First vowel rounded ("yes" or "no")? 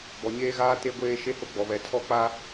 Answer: yes